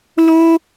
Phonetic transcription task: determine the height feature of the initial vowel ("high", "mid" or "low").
mid